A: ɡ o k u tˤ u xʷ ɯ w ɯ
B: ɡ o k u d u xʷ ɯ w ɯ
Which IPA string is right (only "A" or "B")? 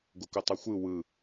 A